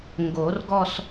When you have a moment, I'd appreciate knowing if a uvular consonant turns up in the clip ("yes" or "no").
no